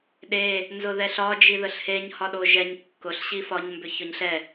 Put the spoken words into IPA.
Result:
ɗ e | n z ʊ ð ɛ ɬ ɒ d͡ʒ i ð ə ɬ h e ɲ h ɒ ɗ o ʒ ɛ ɲ kː ʊ ɬ ɕ i f ɒ ɲ m b ʏ ç ʊ ɲ ɬ ɛ

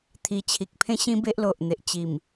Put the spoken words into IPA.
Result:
t̪ʰ i˨˩ t͡ɕʰ i˨ k̚ pʰ ẽ˦ ɕ ĩ˦ b e˦ ʔ l o˨ ʔ n̪ e˨ ʔ t͡ɕ i˨˩ m

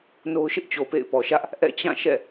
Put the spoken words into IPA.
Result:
n o˦ ʊ̯ ʃ ɪ˦ ʔ t͡ɕ o˨ p ḛ˦˨ ɪ̯ p ɔ˨ ʃ ä˦ ʔ | ʔ ɛ̰˦˨ t͡ɕ ã˦˨ ʃ ɛ̰˦˨

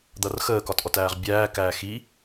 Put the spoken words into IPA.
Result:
d̪ ʌ r x əː k ɒ t ʔ ɔ t æː ʁ bʲ æː k æː x i

